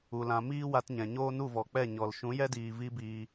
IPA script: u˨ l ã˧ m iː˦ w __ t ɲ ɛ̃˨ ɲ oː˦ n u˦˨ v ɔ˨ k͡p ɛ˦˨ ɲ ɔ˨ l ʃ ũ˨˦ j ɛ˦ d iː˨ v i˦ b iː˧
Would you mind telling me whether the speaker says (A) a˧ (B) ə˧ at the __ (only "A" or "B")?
A